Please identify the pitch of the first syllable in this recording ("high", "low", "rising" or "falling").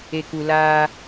low